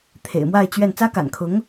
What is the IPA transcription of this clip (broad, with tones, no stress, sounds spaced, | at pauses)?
t̪ʰ ḛ˨˩ ɪ̯ m w a˥˧ ɪ̯ t͡ɕ ɥ ɛ˥˩ n t͡s ä˥ k a̰˨˩ n kʰ ʊ˧˥ ŋ